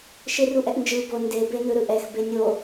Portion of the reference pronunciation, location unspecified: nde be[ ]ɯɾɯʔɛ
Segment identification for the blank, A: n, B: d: A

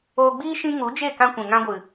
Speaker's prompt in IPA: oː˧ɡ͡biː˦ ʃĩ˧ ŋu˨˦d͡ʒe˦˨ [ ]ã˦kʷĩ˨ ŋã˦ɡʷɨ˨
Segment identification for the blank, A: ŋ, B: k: B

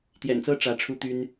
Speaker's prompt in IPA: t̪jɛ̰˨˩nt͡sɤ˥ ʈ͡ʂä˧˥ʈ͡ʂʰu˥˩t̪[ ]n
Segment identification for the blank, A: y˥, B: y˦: A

